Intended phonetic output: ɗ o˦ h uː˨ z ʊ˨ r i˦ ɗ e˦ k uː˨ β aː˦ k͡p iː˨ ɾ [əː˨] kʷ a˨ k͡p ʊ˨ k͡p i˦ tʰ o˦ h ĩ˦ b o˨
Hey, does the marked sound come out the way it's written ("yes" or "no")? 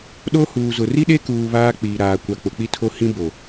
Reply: no